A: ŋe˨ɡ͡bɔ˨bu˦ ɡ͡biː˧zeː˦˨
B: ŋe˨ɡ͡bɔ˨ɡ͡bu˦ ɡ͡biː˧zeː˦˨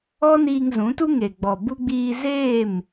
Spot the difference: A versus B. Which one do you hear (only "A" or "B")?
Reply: A